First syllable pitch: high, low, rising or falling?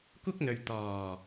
high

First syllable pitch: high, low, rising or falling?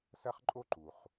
high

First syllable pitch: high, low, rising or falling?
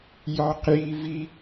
high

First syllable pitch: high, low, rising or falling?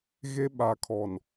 high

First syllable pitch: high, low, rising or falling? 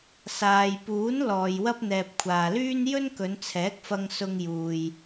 low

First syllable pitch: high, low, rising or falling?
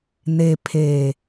low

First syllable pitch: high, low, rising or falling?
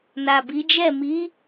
low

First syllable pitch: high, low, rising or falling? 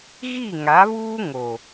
falling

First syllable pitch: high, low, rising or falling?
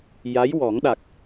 rising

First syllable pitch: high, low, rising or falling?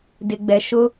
low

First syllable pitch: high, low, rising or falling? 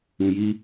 low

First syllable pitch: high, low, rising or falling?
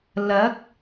rising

